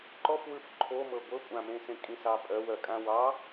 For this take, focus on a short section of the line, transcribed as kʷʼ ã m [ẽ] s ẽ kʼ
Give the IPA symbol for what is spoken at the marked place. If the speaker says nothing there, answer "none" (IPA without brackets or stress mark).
ẽ